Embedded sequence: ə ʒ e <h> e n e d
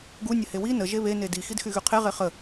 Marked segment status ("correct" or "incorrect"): incorrect